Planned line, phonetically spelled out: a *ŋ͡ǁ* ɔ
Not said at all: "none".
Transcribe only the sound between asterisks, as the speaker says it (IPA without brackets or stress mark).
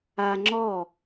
ŋ͡ǁ